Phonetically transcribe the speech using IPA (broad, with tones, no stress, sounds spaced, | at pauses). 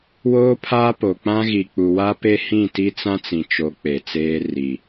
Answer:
w oː˦ pʰ aː˦ p o˨ k͡p ã˦ ɣ i˨ k͡p u˨ w a˦ p e˦ h ĩ˦˨ t i˦ t͡s ã˦ t͡s ĩ˨ t͡ʃ o˨˦ k͡p e˨ t͡s eː˦ r i˨